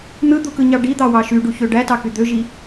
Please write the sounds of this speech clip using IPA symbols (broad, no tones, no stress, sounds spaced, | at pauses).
n̪ ɯ d̪ u k ɯ ɲ ɑ ɖ i d̪ ɑ w ɑ ʃ y ɖ u ç ø ɖ æ t ɑ k y d̪ ø ʒ i